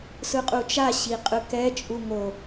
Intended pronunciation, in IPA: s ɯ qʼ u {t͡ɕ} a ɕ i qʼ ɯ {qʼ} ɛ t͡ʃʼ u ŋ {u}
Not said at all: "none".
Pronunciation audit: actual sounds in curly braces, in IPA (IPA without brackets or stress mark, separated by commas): t͡ʃ, k, o